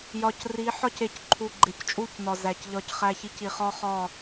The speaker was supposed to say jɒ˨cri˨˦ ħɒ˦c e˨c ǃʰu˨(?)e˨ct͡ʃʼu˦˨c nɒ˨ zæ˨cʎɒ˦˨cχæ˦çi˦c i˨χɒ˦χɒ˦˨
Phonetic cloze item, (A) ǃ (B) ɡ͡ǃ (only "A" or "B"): B